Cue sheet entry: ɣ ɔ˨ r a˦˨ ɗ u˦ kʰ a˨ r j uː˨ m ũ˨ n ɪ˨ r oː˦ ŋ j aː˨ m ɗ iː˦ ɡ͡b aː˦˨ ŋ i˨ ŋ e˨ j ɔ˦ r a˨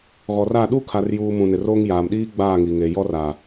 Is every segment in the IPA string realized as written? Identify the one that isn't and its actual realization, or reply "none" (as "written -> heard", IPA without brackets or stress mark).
none